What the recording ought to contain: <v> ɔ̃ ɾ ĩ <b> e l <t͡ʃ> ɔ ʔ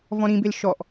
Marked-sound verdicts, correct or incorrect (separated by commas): correct, correct, incorrect